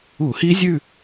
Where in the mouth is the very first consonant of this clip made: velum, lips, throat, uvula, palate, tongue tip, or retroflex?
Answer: throat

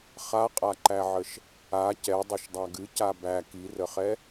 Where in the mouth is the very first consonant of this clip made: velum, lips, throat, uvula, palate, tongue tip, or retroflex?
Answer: uvula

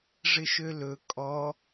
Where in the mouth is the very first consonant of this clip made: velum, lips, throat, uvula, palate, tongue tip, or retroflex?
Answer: retroflex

